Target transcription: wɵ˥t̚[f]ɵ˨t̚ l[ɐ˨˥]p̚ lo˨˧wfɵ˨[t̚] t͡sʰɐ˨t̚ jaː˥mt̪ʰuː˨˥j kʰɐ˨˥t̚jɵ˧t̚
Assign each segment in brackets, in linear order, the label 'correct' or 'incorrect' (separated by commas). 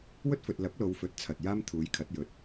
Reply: correct, correct, correct